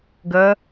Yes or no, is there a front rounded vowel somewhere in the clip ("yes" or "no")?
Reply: no